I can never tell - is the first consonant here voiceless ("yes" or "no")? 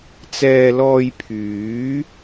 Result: yes